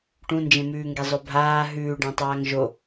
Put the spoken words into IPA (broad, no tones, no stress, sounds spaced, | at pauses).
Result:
ʈ ũ n d͡ʒ ẽ m ʉː ŋ ɡ e zˤ ɵ bʱ aː ɦ ʉː ɖ ã tˤ aː ŋ ʒ o